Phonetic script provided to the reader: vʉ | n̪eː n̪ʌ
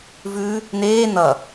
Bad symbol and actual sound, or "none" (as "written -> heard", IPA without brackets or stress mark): none